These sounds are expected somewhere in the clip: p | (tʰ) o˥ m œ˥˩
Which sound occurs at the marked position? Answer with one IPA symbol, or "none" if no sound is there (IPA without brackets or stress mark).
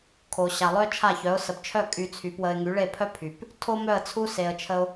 tʰ